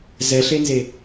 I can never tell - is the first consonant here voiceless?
no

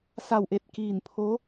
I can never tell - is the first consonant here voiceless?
yes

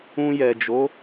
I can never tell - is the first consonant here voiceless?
no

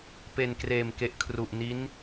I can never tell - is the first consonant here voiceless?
yes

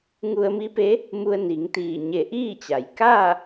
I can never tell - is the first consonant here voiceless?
no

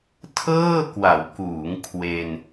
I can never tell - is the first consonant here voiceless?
yes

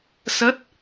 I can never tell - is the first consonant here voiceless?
yes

